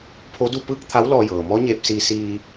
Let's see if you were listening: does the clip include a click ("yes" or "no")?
no